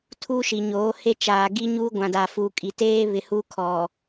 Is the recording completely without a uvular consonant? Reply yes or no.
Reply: yes